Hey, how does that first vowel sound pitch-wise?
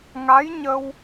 rising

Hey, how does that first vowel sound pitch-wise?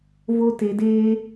high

